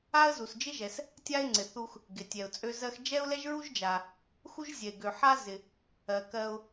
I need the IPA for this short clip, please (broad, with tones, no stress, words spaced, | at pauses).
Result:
a˥ə̯zu˩sd͡ʒɪ˥ʒɛ˩s | tʲa˥ɪ̯ŋ͡ǀɪ˩θu˧x | ɡɪ˩tʲɛ˩ʊ̯t͡sʼø˧ zɜ˧xd͡ʒɛ˥ʊ̯lɛ˥ʒ ɹu˥ʒd͡ʒa˩ | xu˥ʒzʲɛ˩ɪ̯ɡø˩ ħa˥ zɪ˩ | ɜ˩ kɜ˧ʊ̯